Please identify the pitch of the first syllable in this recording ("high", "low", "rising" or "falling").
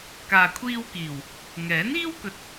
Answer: low